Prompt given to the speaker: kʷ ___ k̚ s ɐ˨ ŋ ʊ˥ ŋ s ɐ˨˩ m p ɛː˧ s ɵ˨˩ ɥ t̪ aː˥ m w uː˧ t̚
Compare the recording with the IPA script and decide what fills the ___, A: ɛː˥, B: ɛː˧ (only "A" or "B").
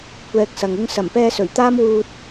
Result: B